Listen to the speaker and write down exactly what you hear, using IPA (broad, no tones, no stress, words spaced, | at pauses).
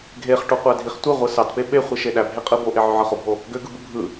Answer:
ɡʱeχʈoqʷædʱiχ tʷeʁʷɯ sɑtpe ɓeχʷiʃe ɗæbʱeqʼɯ boʔeʕøʕɯ χobʱo | ɡøɡɯbɯ bʱɯ